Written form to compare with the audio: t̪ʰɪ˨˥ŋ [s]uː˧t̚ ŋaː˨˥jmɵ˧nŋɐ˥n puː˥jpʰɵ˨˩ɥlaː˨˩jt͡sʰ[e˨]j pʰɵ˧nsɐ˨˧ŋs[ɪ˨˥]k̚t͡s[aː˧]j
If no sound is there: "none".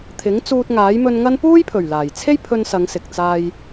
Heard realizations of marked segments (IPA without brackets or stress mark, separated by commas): t͡s, e˥, ɪ˨, aː˧